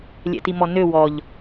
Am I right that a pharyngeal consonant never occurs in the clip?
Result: yes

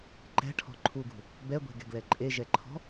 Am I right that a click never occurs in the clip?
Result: no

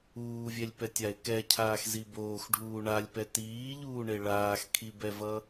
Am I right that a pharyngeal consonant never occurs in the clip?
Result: yes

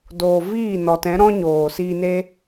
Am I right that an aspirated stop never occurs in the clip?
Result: yes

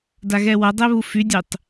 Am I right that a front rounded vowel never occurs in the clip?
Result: no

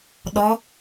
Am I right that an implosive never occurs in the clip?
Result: no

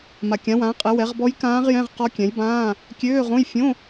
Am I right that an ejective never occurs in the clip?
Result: no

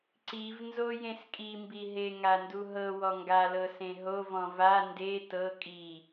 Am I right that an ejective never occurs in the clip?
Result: no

